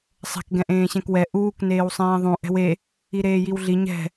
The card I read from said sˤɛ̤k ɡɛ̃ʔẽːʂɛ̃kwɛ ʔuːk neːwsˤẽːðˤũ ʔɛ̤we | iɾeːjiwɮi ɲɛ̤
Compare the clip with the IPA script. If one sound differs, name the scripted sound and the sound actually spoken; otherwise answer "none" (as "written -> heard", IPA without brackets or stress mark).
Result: ʂ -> ɕ